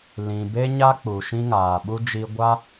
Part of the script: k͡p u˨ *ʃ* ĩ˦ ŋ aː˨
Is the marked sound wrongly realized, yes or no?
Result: no